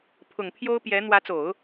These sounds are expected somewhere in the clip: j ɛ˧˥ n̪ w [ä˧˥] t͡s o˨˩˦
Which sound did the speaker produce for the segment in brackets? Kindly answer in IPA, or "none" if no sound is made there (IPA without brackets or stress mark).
ä˧˥